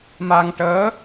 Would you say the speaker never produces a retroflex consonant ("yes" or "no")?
no